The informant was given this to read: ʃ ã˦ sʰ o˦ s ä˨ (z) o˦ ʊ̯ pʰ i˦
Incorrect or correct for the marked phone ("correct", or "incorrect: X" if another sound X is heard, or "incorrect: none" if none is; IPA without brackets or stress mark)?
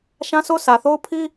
incorrect: θ